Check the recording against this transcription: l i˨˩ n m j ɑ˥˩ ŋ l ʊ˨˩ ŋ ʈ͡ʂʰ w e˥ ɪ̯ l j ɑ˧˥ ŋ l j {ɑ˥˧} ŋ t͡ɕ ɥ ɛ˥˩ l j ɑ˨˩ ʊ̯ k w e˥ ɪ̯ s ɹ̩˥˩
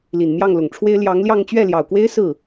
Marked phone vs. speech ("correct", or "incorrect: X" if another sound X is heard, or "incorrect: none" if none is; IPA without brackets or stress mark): correct